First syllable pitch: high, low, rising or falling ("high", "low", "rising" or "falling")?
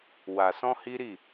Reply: low